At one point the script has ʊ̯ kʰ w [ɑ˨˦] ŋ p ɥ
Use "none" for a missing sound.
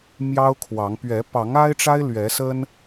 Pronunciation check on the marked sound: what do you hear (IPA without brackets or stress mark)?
ɑ˨˦